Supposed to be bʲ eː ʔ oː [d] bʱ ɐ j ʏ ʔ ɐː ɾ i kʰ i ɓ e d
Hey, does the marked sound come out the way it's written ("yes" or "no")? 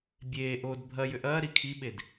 yes